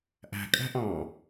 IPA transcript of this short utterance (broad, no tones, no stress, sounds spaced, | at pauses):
ʔ æ̤ kʼ æ̤ ʔ ɑ̃